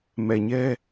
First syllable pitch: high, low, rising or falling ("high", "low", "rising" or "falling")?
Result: low